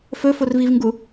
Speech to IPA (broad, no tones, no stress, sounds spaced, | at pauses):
f ɵ f o r v i v ŋ ɡ u